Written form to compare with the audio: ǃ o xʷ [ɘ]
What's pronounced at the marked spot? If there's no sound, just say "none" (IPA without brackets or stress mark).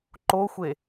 e